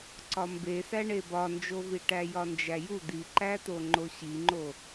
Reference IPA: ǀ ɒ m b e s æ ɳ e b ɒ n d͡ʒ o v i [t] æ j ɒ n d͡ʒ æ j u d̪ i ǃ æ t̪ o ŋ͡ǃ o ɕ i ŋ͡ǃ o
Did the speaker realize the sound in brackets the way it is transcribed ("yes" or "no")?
no